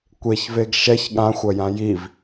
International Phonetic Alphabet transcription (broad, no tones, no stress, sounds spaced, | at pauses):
kʷ e ç v e ɡ ʃ ɛ ç ɠ ã xʷ ɐ j ã j i v